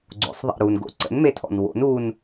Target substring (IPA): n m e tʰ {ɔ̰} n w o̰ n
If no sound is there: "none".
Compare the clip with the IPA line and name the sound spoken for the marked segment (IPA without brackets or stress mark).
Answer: ɔ̰